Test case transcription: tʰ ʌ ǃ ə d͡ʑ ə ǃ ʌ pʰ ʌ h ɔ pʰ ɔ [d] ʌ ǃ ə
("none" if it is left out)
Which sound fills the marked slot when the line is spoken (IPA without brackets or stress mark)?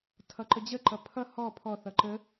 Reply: θ